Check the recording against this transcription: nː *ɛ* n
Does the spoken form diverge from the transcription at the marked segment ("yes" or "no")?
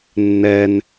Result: no